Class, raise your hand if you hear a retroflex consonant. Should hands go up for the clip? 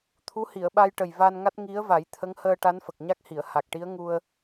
yes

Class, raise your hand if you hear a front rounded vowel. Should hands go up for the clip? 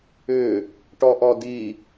yes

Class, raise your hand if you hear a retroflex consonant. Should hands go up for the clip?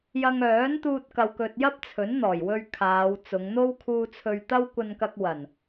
no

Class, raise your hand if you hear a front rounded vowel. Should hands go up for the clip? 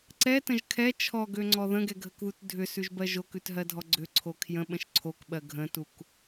yes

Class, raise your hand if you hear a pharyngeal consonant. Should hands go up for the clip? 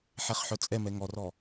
yes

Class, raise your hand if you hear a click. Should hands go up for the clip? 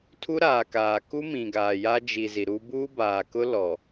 no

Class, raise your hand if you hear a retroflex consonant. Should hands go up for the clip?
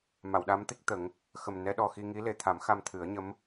no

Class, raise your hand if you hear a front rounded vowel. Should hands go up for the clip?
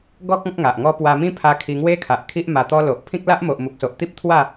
no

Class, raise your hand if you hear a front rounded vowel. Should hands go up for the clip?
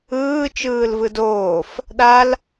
no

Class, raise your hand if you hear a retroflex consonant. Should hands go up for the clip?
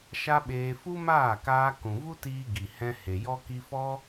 no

